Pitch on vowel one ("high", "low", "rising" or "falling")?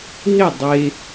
falling